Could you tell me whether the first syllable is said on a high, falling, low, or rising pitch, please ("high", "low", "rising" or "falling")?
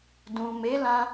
low